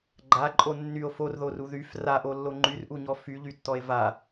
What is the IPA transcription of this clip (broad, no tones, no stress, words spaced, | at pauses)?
ɡ͡ǃaǃʼo nːyo̯ forðoru ðyf raʔolːo ŋ͡ǃyrʔuɲɔ fyʎytːɔe̯ va